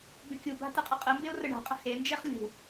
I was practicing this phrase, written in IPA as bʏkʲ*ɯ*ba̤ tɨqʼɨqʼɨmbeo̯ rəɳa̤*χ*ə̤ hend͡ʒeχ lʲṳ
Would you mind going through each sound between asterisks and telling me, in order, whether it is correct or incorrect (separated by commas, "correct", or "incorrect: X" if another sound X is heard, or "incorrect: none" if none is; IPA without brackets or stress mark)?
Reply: incorrect: u, incorrect: qʼ